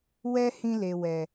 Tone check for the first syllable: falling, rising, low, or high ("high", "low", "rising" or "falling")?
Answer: high